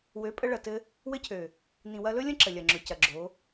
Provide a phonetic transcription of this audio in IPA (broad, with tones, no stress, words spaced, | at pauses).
wø˨˦pʼə˧ɭɐ˨tɘ˧ | wɘ˦cʰø˨ | nĩ˨ wɐ˧lɵ˦lʲə̃˦ ǁə˨lʲɐ˨ŋ͡ǁɵ˨ cɐ˨ɡ͡ǁo˨˦